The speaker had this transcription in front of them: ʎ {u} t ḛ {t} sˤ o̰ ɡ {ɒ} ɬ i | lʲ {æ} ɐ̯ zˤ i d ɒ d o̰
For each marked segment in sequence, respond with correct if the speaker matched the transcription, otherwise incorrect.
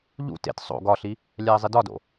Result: incorrect: ṵ, correct, correct, correct

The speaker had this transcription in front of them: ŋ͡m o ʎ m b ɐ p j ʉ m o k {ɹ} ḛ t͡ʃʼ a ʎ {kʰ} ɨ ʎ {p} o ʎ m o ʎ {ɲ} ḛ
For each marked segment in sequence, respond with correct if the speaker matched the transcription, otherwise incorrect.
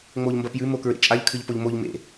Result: correct, correct, correct, incorrect: m

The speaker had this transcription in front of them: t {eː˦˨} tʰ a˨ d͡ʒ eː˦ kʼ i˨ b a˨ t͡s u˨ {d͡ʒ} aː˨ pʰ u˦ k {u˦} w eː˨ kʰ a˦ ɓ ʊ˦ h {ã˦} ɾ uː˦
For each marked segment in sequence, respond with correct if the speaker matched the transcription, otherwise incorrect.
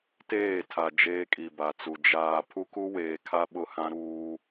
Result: correct, correct, correct, correct

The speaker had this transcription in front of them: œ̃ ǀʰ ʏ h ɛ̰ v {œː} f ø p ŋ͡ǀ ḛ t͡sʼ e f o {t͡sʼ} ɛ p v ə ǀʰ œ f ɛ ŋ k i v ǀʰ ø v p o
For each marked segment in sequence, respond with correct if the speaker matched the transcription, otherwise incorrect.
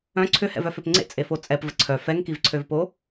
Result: incorrect: œ, correct

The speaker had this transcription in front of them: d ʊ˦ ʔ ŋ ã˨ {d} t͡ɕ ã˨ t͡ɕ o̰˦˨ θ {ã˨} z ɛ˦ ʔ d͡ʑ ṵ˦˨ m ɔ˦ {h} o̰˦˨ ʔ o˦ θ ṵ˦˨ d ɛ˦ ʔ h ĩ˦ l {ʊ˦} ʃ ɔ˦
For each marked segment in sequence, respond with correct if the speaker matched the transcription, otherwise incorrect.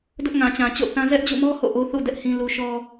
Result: incorrect: none, incorrect: ã˦, correct, incorrect: u˦

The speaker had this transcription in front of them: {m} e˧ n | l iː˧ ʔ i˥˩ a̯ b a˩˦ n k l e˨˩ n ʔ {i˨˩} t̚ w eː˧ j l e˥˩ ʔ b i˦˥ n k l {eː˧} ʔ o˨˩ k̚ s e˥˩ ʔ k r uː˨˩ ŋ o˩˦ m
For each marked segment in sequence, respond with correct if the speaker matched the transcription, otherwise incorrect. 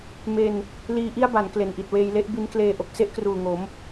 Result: correct, correct, correct

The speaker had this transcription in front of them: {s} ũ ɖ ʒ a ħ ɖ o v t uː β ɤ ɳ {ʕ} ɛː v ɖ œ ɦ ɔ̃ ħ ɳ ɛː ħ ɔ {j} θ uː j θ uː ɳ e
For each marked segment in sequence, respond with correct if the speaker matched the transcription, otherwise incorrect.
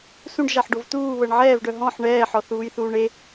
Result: correct, correct, incorrect: none

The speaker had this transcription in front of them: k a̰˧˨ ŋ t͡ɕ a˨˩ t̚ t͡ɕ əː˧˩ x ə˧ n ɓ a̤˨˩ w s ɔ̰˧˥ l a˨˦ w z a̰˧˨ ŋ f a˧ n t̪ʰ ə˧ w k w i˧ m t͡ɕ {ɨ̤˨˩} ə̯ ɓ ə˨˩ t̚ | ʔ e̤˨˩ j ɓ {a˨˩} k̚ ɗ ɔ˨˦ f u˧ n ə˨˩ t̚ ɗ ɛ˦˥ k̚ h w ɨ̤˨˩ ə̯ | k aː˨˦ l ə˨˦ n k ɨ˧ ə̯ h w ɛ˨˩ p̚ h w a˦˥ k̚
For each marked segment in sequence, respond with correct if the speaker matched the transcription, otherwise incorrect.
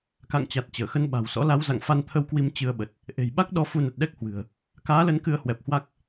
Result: incorrect: ɨ˧, incorrect: a˦˥

